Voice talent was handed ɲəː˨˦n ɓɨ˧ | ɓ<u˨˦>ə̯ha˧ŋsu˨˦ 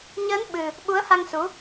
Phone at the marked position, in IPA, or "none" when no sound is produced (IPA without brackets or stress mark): u˨˦